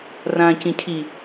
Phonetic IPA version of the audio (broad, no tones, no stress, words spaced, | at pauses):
rãːcĩcʰi